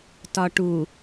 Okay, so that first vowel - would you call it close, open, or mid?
open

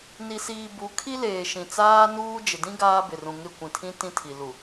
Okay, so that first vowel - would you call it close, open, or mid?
close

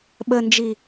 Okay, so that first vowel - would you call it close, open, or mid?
mid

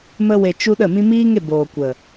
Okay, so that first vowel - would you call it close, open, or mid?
mid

